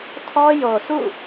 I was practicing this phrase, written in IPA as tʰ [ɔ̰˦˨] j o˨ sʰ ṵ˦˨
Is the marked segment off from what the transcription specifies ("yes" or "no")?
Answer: yes